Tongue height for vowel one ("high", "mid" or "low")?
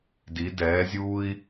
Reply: high